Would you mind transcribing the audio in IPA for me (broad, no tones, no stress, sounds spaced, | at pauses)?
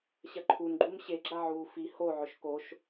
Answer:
ɕ ɐ ǃʰ u n ɡ͡ǃ u m ɕ e ɡ͡ǁ a ʕ uː f i h o ʕ ɵ ʃ k o ʃ